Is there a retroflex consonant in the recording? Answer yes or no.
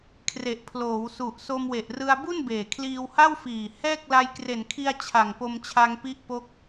no